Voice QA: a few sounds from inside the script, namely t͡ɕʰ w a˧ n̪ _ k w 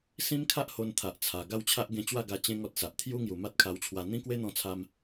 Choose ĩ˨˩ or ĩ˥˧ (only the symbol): ĩ˥˧